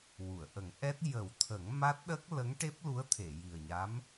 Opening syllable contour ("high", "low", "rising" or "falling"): low